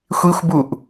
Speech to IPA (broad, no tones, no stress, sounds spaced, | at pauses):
xʷ i xʷ b u ʔ